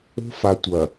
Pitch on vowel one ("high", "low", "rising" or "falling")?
high